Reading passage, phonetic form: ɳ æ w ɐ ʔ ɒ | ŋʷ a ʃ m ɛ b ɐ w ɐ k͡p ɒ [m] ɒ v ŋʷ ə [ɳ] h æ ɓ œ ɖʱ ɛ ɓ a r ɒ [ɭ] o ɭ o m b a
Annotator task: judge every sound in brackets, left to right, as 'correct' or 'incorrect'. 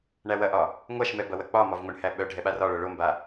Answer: correct, correct, correct

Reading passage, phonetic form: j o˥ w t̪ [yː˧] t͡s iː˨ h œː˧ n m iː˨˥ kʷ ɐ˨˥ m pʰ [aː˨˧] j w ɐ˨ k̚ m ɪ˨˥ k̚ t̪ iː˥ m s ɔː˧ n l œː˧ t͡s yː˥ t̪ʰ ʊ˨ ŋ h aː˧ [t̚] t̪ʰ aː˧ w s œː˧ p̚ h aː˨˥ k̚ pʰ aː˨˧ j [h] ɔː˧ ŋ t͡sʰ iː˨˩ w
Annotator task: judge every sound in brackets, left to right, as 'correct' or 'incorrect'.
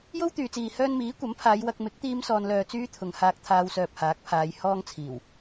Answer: incorrect: yː˨, correct, incorrect: k̚, correct

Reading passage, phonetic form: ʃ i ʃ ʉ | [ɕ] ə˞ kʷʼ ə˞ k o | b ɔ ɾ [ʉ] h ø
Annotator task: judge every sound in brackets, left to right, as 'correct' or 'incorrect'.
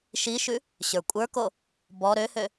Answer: correct, incorrect: ø

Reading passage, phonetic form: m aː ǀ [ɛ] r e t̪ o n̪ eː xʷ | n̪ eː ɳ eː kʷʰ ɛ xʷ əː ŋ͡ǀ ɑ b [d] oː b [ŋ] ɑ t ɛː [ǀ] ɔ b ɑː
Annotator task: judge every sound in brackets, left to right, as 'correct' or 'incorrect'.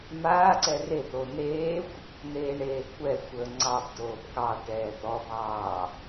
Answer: correct, correct, incorrect: k, incorrect: t̪

